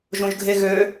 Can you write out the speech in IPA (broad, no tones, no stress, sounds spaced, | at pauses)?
ʒ õ ʒ ɡʱ e ɣ ø